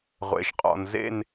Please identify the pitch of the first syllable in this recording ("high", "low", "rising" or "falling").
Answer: low